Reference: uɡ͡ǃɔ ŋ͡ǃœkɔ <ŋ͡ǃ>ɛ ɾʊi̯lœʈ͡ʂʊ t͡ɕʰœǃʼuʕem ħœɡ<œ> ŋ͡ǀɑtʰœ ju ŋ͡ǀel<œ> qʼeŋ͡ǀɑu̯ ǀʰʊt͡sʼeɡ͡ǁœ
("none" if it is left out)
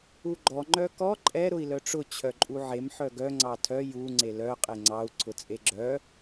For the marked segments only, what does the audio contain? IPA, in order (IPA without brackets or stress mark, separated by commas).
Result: ǃʼ, œ, œ